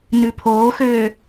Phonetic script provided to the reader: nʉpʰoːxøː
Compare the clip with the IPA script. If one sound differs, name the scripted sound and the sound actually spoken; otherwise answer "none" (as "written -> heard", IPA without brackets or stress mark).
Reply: none